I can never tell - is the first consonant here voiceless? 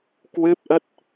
yes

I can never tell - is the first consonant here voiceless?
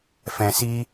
yes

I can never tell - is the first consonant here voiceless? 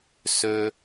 yes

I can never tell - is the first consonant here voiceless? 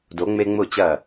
no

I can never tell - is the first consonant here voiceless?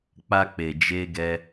yes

